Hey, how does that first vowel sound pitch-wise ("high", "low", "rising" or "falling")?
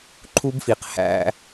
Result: high